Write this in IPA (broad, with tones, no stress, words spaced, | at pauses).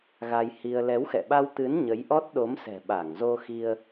ɣa˧jhi˧ə̯ lɛ˨˦wxɛ̰˧˨ɓa˧wt̪ɨ˨˦n ɲə˨˦jʔɔ˦˥t̚ɗo˨˦msɛ̤˨˩ ɓa˧˩ŋzo˧xi˧ə̯